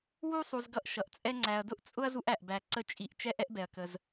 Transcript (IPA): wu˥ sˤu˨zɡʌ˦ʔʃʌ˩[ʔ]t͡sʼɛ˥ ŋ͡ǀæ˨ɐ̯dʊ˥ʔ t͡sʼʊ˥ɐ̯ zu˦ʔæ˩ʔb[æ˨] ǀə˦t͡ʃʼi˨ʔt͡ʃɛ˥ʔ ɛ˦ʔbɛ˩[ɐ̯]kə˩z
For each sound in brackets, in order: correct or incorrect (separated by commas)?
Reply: correct, correct, correct